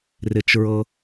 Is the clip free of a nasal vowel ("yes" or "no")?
yes